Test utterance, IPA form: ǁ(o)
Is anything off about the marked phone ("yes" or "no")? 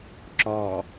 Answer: yes